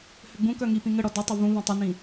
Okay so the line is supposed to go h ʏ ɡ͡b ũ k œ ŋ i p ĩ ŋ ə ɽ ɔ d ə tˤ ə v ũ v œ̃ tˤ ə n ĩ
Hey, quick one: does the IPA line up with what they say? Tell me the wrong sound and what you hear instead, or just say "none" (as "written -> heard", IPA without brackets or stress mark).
none